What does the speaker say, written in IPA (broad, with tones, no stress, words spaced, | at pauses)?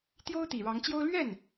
t̪jo˥ʊ̯ t̪i˨˩ɻɑ˧˥ŋt͡ɕjo˥ʊ̯ lɥɛ˥˩n